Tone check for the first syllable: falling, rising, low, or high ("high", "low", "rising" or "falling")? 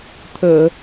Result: low